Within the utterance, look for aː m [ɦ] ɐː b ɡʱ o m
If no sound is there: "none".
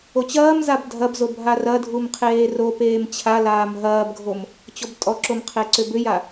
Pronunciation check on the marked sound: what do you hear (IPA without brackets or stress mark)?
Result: ɦ